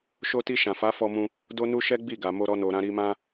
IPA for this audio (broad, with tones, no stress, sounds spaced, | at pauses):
ʃ o˧ t i˧ ʃ ã˨ f a˨˦ f ɔ˧ m ũ˧ | d o˦ n u˦ ʃ ɛ˦ ɡ͡b i˦˨ ɡ a˨ m o˧ ɾ ɔ˧ n o˨ ɾ ã˧ ɾ i˧ m ã˦